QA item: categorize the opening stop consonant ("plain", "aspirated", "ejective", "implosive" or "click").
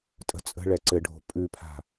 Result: ejective